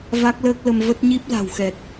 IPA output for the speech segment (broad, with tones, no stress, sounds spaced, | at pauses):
v a˦˥ k̚ l əː˦˥ k̚ l ə˧ m v ə˦˥ t̚ ɲ i˦˥ p̚ l a̤˨˩ w x ɛ˨˩ t̚